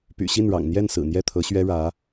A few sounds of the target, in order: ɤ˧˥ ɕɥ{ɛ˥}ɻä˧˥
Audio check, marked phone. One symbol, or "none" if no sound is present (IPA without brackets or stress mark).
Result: ɛ˥